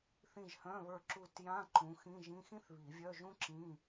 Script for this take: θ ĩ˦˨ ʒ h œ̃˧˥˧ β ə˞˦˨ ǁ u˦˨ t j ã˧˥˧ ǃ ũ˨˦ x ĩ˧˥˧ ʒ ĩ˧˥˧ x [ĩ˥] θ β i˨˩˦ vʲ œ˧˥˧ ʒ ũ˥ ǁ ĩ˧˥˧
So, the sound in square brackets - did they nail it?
yes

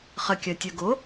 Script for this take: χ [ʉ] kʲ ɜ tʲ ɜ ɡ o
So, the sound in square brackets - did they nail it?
no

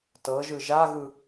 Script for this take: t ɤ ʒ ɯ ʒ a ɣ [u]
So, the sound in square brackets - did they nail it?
no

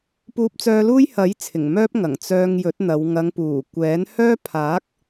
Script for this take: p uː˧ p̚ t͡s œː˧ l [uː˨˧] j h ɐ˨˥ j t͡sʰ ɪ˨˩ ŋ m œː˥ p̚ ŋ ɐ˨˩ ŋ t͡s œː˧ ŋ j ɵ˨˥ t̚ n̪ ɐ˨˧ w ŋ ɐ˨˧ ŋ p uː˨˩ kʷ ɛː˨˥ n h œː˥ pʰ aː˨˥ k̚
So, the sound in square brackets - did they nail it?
no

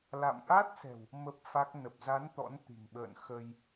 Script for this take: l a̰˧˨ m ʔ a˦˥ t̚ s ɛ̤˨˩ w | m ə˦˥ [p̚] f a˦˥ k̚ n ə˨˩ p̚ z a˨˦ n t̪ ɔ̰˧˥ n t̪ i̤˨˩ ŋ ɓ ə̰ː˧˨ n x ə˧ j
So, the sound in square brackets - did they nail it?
yes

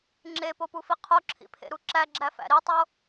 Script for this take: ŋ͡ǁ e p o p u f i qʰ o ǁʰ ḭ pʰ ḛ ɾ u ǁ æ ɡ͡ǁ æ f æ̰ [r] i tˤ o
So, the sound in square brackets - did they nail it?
no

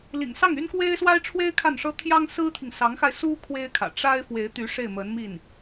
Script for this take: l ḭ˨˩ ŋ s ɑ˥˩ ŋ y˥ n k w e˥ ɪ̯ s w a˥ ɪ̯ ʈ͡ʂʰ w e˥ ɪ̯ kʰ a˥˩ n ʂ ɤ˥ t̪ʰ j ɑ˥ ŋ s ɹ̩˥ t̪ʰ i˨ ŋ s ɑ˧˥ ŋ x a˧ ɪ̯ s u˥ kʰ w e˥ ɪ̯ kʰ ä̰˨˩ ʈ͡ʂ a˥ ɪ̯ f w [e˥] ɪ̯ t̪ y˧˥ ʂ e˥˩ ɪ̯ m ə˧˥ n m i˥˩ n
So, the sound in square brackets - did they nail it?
no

